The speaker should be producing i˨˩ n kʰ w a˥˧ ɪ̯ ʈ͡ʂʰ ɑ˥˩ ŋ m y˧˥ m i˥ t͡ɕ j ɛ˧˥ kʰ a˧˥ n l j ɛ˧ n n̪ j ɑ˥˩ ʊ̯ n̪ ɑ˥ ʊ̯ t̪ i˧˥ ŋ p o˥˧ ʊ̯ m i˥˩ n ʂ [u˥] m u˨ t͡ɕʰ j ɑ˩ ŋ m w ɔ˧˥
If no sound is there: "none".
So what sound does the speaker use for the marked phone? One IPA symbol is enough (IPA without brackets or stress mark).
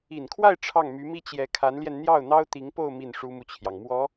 u˥